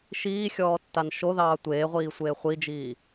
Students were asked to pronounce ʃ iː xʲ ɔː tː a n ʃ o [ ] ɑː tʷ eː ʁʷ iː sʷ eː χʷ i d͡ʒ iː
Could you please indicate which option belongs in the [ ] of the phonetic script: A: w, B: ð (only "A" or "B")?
B